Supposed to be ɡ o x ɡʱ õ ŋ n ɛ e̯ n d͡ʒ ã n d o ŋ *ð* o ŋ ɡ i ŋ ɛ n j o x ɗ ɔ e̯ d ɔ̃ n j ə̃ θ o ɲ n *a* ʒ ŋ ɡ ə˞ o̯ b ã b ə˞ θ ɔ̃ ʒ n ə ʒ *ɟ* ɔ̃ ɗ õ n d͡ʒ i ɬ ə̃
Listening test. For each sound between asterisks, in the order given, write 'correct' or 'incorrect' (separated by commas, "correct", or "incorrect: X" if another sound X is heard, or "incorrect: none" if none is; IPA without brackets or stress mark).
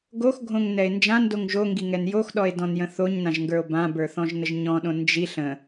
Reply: incorrect: ʒ, incorrect: ã, incorrect: ɲ